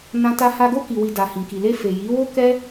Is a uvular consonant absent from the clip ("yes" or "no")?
yes